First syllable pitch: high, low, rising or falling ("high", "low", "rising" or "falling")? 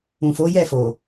low